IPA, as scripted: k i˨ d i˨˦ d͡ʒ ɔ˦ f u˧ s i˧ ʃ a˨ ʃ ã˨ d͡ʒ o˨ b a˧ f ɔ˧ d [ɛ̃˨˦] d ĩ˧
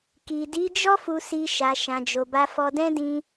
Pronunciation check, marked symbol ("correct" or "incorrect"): incorrect